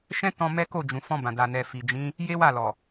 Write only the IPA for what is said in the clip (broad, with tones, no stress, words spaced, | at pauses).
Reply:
ʃɛ̃˦tɔ̃˧ mɛ˦ko˦˨d͡ʒũ˨ fɔ̃˧bã˨da˨nɛ˨ fi˨d͡ʒĩ˨˦ | je˦ wa˦˨lɔ˨